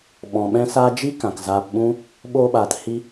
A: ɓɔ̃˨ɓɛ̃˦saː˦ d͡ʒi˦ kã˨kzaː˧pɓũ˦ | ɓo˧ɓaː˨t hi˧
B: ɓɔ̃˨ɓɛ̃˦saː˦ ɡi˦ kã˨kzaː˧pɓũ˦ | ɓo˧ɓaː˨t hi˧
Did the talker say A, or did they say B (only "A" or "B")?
A